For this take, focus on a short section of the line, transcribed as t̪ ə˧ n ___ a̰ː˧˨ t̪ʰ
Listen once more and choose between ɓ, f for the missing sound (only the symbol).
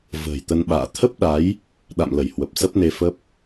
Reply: ɓ